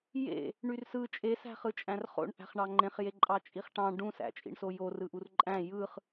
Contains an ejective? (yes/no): yes